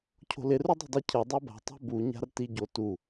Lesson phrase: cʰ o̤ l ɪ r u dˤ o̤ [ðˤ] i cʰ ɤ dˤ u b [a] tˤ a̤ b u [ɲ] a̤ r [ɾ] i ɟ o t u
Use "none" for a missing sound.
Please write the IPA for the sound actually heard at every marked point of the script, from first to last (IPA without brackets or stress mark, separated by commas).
dˤ, a̤, ɲ, t